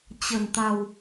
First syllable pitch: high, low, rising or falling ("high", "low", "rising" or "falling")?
low